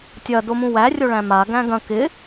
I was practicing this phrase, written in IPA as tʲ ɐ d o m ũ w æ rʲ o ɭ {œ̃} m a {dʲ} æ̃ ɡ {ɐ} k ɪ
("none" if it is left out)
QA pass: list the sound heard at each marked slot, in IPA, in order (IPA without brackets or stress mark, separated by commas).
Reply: æ̃, ɡ, ɐ̃